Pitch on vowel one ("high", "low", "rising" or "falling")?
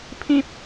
high